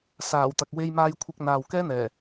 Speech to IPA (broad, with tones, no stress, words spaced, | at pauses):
saː˨˩wt̪ɐ˨k̚ we˧jmaː˧jkʷʰɪ˧k̚n̪aː˨w kɛː˥n̪ɛː˨˩